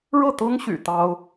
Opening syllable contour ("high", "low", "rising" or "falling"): falling